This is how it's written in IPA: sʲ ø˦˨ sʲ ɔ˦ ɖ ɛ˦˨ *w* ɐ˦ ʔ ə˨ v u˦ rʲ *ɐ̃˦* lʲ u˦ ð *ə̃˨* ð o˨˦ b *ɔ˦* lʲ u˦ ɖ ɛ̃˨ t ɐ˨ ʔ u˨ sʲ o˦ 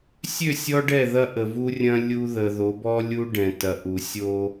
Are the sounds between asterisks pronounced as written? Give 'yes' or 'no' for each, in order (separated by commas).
no, yes, no, yes